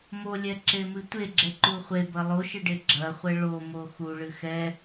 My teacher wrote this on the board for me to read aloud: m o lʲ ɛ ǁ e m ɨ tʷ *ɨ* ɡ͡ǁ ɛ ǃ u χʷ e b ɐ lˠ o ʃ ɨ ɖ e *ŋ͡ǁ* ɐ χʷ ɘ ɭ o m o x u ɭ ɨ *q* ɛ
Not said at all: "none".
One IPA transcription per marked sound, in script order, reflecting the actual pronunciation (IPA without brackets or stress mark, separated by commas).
e, ɡ͡ǁ, x